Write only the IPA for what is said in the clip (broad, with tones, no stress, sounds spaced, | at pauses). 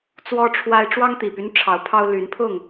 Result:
t͡s w ɔ˦ ʈ͡ʂʰ w a˦ ɪ̯ ʈ͡ʂ w ɑ˦ ŋ t̪ i˨˩ p y˦ n ʈ͡ʂʰ ɑ˨˦ ʊ̯ pʰ ɑ˦ ʊ̯ l y˨˦ n pʰ ʊ˥˨ ŋ